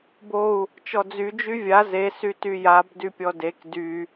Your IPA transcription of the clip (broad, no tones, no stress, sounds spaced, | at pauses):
b o u̯ | t͡ʃ ɔ d͡z y d͡ʒ y vʲ a z e s y t y j a b d y pʲ ɔ d e k d y